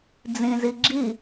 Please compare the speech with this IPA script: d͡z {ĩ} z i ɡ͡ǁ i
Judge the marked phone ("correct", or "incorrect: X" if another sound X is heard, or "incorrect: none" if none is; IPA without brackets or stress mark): correct